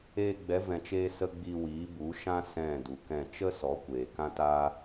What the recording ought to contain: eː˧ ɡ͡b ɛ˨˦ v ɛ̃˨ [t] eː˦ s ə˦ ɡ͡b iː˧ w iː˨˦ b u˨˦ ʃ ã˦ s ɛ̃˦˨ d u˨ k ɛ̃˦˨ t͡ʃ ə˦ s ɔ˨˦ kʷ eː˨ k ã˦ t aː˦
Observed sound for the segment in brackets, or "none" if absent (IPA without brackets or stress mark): t͡ʃ